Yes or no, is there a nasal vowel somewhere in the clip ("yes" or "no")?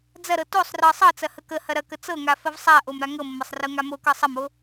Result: no